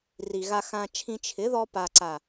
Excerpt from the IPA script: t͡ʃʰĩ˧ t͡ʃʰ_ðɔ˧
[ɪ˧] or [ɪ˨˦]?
ɪ˨˦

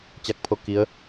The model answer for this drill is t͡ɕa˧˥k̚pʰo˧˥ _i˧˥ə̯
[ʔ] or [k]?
k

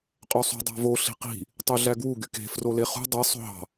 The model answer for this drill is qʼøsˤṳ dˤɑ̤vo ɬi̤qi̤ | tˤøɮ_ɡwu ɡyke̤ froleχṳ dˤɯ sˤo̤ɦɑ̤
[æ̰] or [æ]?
æ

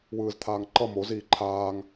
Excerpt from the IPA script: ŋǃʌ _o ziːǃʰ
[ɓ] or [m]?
m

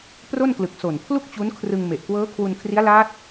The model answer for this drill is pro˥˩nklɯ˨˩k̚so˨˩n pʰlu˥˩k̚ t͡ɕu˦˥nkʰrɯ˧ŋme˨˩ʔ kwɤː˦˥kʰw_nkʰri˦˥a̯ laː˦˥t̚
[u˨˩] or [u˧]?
u˧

